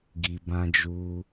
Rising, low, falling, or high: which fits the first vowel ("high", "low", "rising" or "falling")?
low